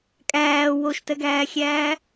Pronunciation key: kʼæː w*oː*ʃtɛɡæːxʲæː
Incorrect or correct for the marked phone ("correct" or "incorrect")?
incorrect